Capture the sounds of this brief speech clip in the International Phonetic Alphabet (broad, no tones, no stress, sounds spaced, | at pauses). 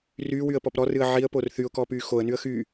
r yː w y ə̯ p ɔ p ɾ ɔ r ɨ ə̯ ʕ i ə̯ p o r θ y ʊ̯ k ɔː p yː x o ə̯ n y ə̯ x y